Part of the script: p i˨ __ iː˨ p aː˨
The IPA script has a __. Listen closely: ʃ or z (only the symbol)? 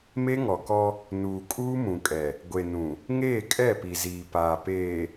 z